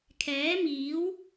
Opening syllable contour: rising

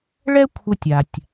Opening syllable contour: high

